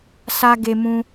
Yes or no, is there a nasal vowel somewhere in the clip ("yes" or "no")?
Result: yes